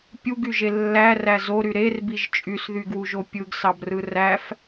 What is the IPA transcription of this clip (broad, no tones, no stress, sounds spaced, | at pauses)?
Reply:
pʲ u ɡ y ʒ e lː æ r æ z o ɾ y ɾ e r b i ʒ t͡ʃʼ y s ð y ɡ w u ʒ o pʲ ɯ ɡ s ɑ b r ɯ r æ f